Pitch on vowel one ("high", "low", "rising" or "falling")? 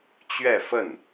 falling